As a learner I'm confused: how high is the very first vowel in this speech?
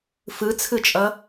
high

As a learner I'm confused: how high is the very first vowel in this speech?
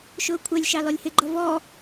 high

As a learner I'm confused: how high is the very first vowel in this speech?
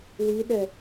high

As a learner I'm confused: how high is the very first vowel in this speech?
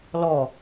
mid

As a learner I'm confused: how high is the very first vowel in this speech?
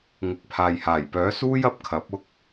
high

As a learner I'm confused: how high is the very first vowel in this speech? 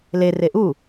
mid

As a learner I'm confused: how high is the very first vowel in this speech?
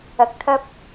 low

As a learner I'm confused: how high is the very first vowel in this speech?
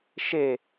mid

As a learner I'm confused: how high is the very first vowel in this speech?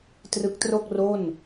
high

